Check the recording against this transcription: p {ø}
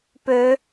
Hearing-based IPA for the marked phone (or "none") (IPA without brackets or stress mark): ø